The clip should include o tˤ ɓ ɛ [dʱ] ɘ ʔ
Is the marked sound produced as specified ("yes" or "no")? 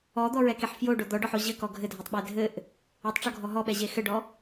yes